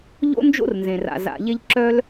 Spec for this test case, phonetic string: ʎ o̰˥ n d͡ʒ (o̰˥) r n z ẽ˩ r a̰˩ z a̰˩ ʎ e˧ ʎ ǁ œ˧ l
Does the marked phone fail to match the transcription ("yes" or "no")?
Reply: no